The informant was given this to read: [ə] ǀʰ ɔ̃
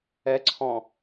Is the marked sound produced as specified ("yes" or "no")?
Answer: no